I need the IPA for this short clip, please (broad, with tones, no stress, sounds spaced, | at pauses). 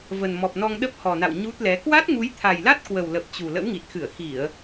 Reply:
v ə˨˩ n m ɔ˨˩ p̚ n ɔ˧ ŋ ɗ ə˦˥ p̚ h ɔ˨˩ n a̰˧˨ w ɲ u˦˥ t̚ l ɛ˨˦ k w a˦˥ t̚ ŋ u˨˦ j t̪ʰ a˨˩ j l a˦˥ t̚ k w ə˨˩ w l ə˨˩ p̚ t͡ɕ u˨˩ l ə̰˧˥ w ŋ i˨˩ t̚ x ɨ˧˩ ə̯ x i˧˩˨ ə̯